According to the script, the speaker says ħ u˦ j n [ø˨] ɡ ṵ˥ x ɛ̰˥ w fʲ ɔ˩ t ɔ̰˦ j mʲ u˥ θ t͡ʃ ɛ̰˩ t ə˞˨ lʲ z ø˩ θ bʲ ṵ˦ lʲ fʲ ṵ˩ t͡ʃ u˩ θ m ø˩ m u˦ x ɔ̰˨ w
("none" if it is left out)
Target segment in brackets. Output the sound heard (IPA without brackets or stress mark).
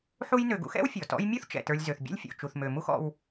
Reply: ø˨